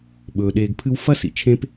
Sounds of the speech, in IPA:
ɓ ɵː˩ ɗ eː˨ ɡ pʰ ɨ˦ w f ɐ˥ s ḭ˨ t͡ʃʰ ẽ˦ p

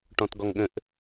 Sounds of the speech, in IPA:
ʈ ɔ̃ t ɡ ɔ ŋ ɠ ə̃ ʔ

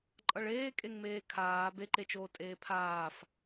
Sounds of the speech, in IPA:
ǃʼ ʌ ɭ eː kʼ e ŋ m eː kʰ aː b e ǃ e t͡ʃ oː tʼ eː pʰ aː f

